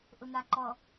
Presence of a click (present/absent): present